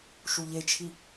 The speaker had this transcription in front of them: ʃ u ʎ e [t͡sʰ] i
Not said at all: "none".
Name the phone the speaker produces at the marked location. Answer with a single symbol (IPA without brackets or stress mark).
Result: t͡ʃʰ